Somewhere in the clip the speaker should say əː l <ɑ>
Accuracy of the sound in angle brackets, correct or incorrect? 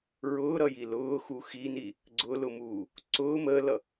incorrect